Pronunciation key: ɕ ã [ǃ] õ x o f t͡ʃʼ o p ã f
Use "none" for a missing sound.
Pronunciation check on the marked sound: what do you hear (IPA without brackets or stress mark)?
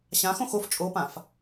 x